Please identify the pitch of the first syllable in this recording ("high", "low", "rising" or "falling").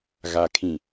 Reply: low